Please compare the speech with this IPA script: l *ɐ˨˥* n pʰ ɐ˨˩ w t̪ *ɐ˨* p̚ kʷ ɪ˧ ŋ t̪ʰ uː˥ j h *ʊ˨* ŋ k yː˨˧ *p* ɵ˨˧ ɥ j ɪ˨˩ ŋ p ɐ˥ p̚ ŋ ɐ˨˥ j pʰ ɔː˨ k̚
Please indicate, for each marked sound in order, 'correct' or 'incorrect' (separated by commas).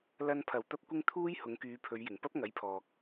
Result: incorrect, incorrect, incorrect, incorrect